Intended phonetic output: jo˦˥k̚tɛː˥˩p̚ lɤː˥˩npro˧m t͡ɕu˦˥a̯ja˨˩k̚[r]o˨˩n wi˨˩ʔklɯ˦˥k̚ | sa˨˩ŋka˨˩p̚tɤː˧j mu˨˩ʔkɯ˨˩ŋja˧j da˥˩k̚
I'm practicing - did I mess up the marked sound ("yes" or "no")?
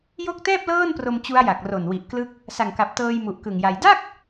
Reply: no